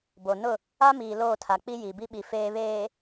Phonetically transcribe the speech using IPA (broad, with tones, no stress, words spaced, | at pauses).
bo˨nʊ˦˨ | a˦miː˨ loː˦˨tʰa˨k͡pi˦ ji˨bi˦ɓi˨ feː˨βeː˨